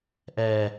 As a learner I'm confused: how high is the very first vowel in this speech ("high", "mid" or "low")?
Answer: mid